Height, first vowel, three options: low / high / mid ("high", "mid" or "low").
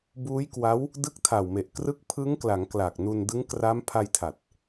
high